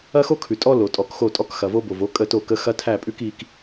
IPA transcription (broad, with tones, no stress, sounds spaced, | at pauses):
ɐ˦ x o˦ kʰ ʉ˨ tʼ ɔ˦ l o˨ tʼ ɔ˨˦ k x o˦˨ tʼ ɔ˦ k x ɐ˨ v o˦ b o˨ v o˦ kʼ ə˦˨ t o˦˨ k ə˦ x ɐ˦ tʰ æ˦˨ pʼ ʉ˦ k i˦ k